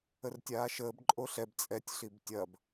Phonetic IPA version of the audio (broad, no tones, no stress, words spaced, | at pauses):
ərtʲaːʃəːb ǃʼoɬɛb t͡sʼɛtʲ ɬibtʲɐb